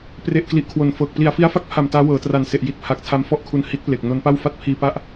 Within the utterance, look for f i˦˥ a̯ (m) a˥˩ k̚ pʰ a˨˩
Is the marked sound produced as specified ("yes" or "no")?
no